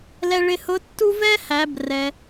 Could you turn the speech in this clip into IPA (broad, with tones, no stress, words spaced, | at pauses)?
lɛ˧ɭɪ˧hʊ˧˥ tːu˥ vɛ˥hæ˩˧brɛ˩